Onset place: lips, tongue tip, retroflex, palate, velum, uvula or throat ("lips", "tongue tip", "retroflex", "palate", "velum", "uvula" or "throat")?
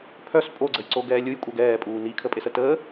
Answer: lips